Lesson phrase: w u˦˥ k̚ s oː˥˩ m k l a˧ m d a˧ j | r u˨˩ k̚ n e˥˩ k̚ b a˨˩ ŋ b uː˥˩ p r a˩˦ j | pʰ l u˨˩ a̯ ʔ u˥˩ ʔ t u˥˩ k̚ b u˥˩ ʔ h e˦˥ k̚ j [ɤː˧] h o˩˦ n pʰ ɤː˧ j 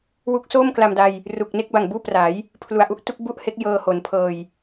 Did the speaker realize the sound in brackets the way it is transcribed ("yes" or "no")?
yes